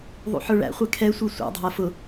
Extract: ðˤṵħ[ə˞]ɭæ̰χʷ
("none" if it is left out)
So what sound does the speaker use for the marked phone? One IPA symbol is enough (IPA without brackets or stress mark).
ə˞